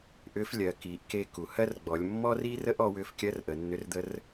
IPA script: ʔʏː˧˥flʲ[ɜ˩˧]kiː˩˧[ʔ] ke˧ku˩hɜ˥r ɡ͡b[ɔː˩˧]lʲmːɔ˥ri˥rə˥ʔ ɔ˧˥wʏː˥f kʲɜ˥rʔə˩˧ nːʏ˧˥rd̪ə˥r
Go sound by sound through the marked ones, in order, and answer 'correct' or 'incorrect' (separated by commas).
correct, correct, incorrect